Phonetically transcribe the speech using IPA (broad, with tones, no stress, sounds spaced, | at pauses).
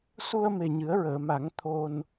s u˧ ə̯ m e˨˩ ɲ ɨ˨˩˦ ə̯ ɹ əː˨˩˨ m a˨˩˦ ŋ t̪ʰ o˧ n